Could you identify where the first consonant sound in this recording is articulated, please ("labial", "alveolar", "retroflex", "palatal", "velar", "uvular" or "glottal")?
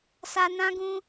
alveolar